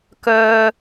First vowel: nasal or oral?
oral